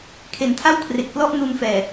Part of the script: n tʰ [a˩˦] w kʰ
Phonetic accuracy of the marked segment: incorrect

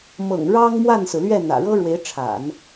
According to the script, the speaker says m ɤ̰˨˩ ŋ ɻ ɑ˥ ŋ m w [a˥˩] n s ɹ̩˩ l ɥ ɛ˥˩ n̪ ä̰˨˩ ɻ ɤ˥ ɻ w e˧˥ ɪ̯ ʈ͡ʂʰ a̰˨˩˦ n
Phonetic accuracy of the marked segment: correct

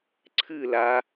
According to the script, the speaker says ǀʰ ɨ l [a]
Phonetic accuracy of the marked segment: correct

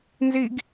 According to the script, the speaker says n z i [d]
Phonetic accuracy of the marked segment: incorrect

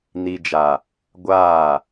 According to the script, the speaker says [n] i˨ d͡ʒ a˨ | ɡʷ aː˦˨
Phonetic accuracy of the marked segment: correct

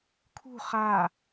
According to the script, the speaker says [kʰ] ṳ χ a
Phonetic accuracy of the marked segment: correct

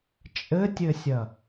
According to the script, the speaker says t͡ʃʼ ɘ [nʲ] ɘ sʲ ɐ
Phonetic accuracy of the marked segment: incorrect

